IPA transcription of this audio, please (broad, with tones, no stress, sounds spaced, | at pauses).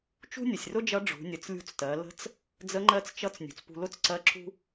t͡ʃ ṳ˥ nʲ ə˩ sʲ r ʊ˥ d͡ʒ ʌ˧˥ ɖ͡ʐ ṳ˩˧ nʲ ə˩˧ t͡s lʲ ṳ˧ t͡s t ɜ˩˧ l ə̤˧˥ t͡s | d͡z ə˧˥ ŋ͡ǃ ɜ˧˥ t͡s t͡ʃ ʌ˧˥ t͡s nʲ ṳ˩ t͡s p ṳ˧ l ʊ˥ t͡s ǀ ɜ˧˥ ǁ ṳ˥